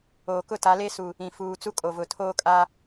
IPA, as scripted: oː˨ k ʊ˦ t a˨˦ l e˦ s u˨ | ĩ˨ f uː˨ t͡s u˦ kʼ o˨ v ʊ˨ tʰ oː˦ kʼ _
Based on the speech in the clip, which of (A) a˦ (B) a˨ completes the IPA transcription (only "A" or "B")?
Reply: A